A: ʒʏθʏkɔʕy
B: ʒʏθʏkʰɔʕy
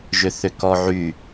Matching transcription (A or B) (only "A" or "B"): A